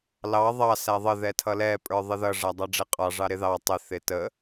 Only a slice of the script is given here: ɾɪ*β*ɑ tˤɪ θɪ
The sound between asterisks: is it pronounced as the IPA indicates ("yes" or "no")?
no